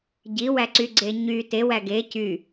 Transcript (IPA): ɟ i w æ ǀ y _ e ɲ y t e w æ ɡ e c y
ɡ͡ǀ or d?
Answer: ɡ͡ǀ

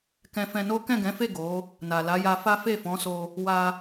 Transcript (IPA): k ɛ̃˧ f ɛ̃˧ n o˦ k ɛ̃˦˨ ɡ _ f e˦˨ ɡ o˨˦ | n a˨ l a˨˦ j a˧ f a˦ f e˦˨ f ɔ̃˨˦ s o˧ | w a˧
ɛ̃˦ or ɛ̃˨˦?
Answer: ɛ̃˨˦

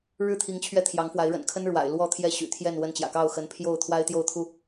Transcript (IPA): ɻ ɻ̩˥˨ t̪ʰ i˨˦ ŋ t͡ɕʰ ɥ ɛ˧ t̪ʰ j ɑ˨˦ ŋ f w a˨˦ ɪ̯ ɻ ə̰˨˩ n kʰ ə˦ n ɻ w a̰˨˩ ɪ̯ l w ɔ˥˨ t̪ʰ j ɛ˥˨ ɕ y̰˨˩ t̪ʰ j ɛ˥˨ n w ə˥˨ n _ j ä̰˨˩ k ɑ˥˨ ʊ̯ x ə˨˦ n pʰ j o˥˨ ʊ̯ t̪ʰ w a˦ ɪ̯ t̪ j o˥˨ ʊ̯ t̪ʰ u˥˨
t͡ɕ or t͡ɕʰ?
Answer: t͡ɕ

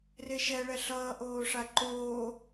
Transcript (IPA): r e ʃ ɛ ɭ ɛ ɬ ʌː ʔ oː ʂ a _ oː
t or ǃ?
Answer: ǃ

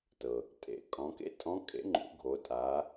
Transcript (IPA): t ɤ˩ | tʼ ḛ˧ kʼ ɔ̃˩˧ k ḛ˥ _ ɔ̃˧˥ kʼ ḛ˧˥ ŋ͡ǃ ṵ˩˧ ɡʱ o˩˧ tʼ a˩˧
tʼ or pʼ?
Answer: tʼ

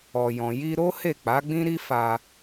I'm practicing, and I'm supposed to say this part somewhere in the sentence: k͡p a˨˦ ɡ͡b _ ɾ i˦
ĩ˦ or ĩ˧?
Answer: ĩ˦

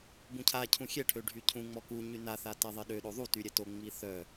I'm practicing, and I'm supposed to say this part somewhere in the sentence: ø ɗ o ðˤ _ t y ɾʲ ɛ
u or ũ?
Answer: u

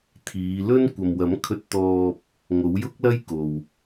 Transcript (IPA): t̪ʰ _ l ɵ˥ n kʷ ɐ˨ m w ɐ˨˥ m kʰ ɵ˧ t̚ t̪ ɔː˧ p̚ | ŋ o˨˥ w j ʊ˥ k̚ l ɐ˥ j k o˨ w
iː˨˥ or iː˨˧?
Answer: iː˨˧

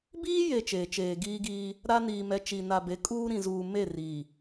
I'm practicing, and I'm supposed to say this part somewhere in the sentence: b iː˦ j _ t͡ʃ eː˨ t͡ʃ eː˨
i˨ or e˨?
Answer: e˨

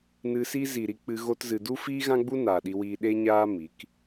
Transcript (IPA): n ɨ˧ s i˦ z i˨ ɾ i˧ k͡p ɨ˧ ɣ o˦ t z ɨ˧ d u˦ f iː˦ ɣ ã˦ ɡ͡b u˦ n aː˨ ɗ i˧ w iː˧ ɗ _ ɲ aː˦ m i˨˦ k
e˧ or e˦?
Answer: e˦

